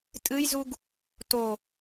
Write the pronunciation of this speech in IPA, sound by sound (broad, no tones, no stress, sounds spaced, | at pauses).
tʼ ɨ j z u ɡ | t o